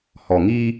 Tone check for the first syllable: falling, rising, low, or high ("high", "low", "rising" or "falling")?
low